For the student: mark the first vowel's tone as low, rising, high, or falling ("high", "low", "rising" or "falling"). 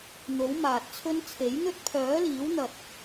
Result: rising